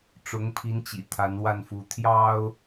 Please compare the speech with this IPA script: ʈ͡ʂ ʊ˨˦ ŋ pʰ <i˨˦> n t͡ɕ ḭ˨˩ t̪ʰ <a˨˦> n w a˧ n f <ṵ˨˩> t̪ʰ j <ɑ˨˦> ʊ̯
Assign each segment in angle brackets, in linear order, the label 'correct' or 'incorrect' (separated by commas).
correct, correct, incorrect, incorrect